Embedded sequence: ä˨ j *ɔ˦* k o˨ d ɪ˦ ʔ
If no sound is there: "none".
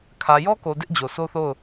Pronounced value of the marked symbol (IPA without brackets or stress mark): ɔ˦